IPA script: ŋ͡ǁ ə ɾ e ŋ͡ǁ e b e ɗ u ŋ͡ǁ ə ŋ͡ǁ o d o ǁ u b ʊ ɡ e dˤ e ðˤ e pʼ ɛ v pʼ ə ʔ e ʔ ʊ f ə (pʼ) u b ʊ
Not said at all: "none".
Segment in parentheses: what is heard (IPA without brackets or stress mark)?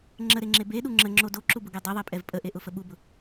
ɓ